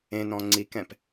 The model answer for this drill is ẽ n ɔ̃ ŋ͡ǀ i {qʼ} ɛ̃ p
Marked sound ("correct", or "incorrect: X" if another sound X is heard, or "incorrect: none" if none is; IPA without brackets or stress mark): incorrect: k